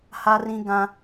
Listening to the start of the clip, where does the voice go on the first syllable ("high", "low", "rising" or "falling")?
high